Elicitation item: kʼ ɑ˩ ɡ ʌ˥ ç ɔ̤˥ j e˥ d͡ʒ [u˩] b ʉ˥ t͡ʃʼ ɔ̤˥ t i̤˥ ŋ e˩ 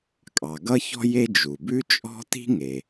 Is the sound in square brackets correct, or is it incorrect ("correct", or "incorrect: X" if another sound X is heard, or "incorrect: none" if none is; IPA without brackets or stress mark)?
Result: correct